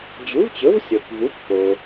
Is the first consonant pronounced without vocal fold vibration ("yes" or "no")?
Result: no